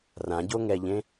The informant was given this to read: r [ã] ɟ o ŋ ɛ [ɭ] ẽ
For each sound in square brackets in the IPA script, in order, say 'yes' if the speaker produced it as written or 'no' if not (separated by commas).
yes, no